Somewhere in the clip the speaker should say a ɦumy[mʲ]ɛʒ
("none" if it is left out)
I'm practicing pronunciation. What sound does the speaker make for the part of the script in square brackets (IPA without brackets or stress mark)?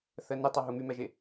m